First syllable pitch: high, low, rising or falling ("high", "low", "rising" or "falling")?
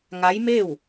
rising